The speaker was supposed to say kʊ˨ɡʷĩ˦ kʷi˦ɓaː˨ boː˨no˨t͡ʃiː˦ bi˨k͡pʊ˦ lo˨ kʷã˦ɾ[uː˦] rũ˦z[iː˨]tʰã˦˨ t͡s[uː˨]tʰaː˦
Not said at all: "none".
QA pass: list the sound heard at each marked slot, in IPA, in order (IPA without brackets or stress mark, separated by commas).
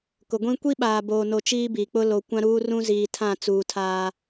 uː˦, iː˨, uː˨